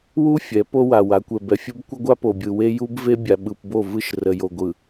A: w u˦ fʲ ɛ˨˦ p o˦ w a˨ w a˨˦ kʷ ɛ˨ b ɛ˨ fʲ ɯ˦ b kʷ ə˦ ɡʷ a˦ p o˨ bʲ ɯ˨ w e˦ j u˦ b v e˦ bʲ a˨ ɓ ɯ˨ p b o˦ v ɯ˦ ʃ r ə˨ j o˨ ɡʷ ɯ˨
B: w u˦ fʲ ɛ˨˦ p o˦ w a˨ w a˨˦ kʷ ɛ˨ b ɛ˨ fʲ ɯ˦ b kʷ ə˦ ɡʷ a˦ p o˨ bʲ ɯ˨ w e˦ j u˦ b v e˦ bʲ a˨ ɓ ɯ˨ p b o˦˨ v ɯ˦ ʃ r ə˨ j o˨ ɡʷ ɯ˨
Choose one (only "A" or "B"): B